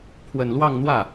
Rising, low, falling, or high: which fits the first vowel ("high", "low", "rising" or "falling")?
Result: low